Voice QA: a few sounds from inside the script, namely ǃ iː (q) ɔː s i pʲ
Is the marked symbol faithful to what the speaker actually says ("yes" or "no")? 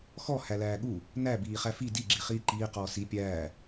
yes